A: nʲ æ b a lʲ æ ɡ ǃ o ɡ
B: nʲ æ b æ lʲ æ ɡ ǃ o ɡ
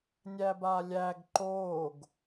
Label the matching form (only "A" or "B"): A